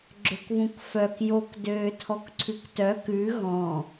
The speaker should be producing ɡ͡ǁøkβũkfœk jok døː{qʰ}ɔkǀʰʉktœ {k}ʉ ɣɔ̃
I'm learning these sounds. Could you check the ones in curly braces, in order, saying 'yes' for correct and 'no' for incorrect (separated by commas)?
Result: no, yes